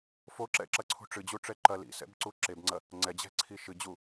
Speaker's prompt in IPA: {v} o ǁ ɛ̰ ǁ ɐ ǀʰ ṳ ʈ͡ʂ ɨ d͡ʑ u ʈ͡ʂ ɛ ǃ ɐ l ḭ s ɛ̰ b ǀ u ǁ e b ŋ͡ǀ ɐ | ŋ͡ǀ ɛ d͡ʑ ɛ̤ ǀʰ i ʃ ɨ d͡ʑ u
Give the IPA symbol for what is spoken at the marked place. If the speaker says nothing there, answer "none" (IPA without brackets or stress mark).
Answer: f